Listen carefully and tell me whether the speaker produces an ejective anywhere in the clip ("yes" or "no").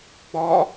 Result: no